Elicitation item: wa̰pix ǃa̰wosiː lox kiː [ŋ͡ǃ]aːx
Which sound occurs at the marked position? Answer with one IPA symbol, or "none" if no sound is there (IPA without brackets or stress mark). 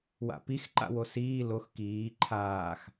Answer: ǃʰ